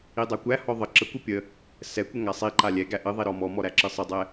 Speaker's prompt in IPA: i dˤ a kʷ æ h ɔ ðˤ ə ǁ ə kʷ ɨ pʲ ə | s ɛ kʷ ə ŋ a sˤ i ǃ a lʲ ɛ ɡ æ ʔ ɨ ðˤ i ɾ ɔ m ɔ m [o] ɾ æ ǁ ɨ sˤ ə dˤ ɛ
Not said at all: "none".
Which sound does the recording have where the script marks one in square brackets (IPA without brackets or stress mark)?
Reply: ɔ